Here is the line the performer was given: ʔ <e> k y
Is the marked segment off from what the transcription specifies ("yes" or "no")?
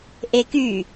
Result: no